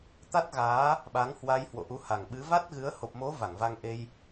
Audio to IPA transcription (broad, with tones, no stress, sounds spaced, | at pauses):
t̪ a˦˥ t̚ ɣ aː˨˦ | ɓ a˨˦ ŋ h w a˧ j h w o̰˧˨ ʔ u˨˦ h a˨˩ ŋ ɓ ɨ˨˦ v a˦˥ t̚ ɣ ɨ˨˦ ə̯ h o˨˩ p̚ m o˨˦ v a˧˩ ŋ v a˧ ŋ ʔ e˧ j